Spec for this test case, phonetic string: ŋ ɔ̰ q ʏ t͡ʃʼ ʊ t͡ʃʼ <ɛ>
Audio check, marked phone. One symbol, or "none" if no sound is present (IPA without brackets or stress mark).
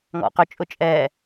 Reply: ɛ